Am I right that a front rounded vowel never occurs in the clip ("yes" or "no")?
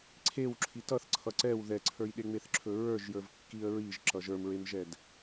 yes